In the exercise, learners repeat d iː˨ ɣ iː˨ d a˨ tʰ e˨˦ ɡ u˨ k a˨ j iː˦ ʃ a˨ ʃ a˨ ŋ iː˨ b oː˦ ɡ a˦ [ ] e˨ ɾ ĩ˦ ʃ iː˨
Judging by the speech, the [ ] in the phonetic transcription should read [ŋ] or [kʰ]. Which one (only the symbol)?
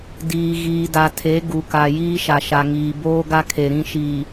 kʰ